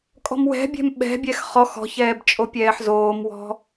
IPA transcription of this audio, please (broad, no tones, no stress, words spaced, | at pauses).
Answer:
kʼɔ̤mwɛ̤bʲɛ̤m ɓɛ̤bʲɛx χɔx ɔ̤çɛːb t͡ʃʼopʲɛːħzoːmwɔ̤